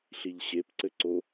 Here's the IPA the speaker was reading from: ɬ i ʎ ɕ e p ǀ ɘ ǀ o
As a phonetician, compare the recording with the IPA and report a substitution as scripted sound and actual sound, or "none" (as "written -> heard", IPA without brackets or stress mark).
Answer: none